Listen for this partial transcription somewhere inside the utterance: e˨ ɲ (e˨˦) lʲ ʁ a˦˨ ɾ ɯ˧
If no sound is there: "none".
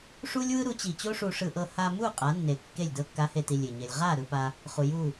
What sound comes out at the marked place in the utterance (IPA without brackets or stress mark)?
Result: e˨